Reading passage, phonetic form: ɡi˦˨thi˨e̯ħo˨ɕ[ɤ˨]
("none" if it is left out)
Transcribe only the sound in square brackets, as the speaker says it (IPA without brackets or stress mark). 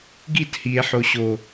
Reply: o˨